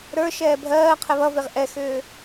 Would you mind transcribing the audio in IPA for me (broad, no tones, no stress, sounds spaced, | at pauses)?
ɾ ə˞ ʃ ɛː bʱ ɜː qʰ ɛ β ʌ v e ʁ ʔ ɛ x ʏː